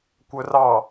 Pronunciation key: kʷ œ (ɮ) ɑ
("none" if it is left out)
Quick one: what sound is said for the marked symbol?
r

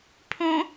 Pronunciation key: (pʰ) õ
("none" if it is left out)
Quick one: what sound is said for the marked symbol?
pʰ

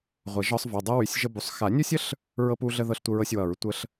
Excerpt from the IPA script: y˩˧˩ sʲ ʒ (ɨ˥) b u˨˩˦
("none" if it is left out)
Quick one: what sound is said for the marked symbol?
ə˥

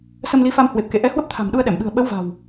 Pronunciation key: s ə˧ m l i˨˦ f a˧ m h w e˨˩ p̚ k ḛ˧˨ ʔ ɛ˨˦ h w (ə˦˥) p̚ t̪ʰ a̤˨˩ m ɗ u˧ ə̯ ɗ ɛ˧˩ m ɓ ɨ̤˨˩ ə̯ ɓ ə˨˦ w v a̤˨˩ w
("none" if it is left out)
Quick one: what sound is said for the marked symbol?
ə˦˥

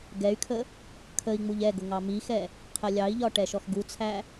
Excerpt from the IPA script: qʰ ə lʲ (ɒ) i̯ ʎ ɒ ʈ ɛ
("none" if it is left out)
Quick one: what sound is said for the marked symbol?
ɑ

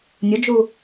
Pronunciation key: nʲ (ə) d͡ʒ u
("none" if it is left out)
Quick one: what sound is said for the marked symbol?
ʊ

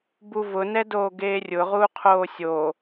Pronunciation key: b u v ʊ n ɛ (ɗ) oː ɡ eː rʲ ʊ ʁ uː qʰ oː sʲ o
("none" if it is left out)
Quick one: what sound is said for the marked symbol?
d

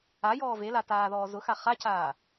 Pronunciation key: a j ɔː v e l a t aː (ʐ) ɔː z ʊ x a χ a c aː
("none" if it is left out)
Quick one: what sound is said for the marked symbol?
ð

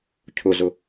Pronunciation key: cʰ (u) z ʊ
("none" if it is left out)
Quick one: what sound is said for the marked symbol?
ʊ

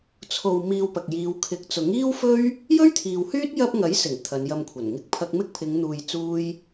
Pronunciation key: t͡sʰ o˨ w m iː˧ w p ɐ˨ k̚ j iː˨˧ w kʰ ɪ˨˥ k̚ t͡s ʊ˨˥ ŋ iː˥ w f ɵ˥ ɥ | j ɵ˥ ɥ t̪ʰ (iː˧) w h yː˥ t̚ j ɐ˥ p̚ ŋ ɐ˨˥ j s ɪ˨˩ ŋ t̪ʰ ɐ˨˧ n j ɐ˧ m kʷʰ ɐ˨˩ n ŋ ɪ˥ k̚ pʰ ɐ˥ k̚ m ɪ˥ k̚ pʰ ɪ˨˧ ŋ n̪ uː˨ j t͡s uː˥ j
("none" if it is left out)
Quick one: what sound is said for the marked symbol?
iː˨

